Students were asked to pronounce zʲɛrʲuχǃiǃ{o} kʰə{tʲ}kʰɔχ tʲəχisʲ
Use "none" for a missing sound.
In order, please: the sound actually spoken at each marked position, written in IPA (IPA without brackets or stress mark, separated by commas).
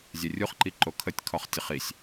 o, tʲ